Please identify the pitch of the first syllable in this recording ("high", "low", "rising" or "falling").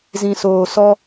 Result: low